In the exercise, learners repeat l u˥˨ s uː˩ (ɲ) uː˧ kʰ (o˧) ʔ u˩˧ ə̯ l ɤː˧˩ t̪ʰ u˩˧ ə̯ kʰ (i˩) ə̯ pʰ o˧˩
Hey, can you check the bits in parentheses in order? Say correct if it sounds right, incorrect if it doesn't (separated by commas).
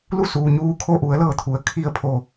correct, correct, incorrect